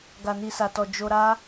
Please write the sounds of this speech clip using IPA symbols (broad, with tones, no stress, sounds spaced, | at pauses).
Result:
ɡ a˨ n i˨ s a˨ t ɔ˨ d͡ʒ o˧ ɾ a˦